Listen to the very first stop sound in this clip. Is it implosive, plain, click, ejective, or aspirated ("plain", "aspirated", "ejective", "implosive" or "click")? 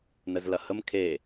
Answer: aspirated